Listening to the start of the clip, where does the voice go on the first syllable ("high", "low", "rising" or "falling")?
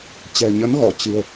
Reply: low